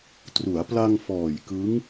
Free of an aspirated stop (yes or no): yes